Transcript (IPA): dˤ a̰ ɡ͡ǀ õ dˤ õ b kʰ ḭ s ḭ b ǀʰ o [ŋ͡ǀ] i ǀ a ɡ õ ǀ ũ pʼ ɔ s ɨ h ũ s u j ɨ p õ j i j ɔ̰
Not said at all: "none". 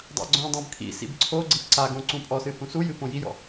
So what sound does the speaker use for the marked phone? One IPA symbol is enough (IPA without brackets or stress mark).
ɡ͡ǀ